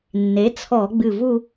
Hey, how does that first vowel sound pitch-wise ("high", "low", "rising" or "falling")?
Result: rising